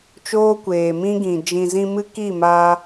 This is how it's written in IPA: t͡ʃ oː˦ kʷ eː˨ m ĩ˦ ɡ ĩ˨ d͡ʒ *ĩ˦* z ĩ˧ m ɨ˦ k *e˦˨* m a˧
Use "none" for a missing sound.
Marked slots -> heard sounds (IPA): ĩ˨, i˦˨

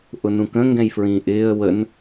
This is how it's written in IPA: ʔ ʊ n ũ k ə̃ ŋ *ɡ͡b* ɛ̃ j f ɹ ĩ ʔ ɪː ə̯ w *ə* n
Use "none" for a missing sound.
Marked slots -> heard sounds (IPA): ɡ, ə

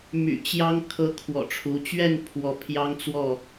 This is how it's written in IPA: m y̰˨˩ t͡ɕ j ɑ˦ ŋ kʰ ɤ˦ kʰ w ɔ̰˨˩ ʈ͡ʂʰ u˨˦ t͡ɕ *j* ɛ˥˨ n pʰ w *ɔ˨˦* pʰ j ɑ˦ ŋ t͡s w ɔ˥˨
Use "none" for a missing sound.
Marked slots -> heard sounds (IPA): ɥ, ɔ˨˦

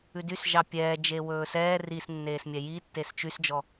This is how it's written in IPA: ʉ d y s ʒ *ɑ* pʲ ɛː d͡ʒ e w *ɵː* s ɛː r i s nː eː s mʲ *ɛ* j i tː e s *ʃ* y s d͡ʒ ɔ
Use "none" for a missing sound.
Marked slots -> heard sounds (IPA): ɑ, ɵː, ɛ, t͡ʃ

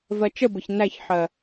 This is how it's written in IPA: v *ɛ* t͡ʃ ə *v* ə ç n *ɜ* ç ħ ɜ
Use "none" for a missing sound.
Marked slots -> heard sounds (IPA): ɜ, b, æ

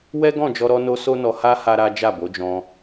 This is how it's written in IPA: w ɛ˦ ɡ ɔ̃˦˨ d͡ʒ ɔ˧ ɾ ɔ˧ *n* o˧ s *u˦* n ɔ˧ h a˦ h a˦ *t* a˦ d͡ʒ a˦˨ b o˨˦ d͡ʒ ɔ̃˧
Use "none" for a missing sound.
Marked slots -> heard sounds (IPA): n, o˦, ɾ

